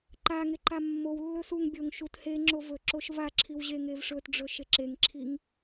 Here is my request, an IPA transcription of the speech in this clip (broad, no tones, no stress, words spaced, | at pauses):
ǃaŋeǃa mːow lːɵsuŋ bʲoŋ ʃut he ŋ͡ǁovɵ ǁoʃva ǁʰiwʑeŋevʂɵt ɖ͡ʐɵʃeǁeŋǁʰiŋ